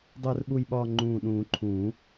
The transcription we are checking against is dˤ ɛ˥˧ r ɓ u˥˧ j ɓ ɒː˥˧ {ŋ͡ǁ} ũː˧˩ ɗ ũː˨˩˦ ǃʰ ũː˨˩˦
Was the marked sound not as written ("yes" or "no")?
yes